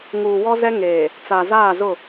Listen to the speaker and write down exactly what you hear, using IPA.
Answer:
ŋ uː˨ w ɔ˦ z ɛ˦ ŋ eː˨ | t͡s a˨ z aː˦˨ z ʊ˦˨

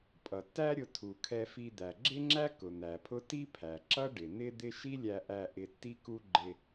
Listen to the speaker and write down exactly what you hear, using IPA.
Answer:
pʼ ʌ˩ tː æ˥ ɾʲ ʊ˧ tʰ u˩ kʰ ɛ˧ f i˧ d̪ æ˩ ɡ͡ǁ ɪ˥ ŋ͡ǁ æ˥ k ʊ˩ n̪ æ˩ pʰ ʊ˥ t i˥ pʰ æ˩ ǁ ʌ˥ ɖ ɪ˩ n̪ ɪ˥ d̪ ɪ˥ ʃ i˥ lʲ æ˧ ʔ æ˧ ʔ ɪ˧ tː i˥ k u˥ ɡ͡ǃ ɪ˧

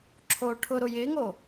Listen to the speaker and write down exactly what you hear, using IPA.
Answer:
ǁʰ oː ʈʰ ʊ ɾ ʊ j ɪː ŋ o

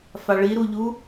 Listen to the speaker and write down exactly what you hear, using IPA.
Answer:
f a ɭ i ɾ u ʎ u

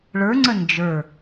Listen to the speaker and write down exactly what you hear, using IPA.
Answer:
ɭ ə˞ ŋ͡ǀ ə n d͡ʒ ə˞

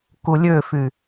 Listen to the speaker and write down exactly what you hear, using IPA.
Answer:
k u lʲ ø f y

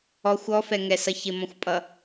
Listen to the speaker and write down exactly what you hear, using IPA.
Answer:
ɔ xʷ ɔ f ɛ ŋ ɛ s ʌ ç ɪ m ɔ̃ xʷ pʼ ʌ

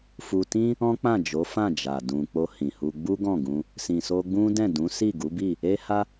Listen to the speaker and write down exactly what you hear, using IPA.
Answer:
f u˧ t ĩ˦ | ɔ̃˦ k͡p ã˦˨ d͡ʒ o˨˦ f ã˦˨ d͡ʒ a˨ d ũ˨ k͡p o˧ h ĩ˨ h u˧ ɡ͡b u˦ ɡ ɔ̃˦˨ ɡ ũ˧ | s ĩ˨ s o˧ ɡ͡b ũ˦ d ɛ̃˦˨ d ũ˨˦ s i˦˨ ɡ u˨˦ b i˦˨ | e˦ h a˦

